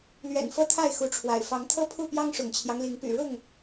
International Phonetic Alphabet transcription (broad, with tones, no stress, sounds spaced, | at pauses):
l ɥ ɛ̰˨˩ n f ɤ˦ t̪ʰ a˥˨ ɪ̯ x u˨˦ ʈ͡ʂʰ w a̰˨˩ ɪ̯ f ɑ˨˦ ŋ t̪ʰ ɤ˦ pʰ u˥˨ p j ɑ˦ ŋ ʂ ʊ̰˨˩ ŋ t͡ɕʰ j ɑ˦ ŋ l i˨˦ ŋ p y̰˨˩ ɻ ʊ˥˨ ŋ